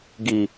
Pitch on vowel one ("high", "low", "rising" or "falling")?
low